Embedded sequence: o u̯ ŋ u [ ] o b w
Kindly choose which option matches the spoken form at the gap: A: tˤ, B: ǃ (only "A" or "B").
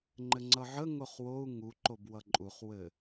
B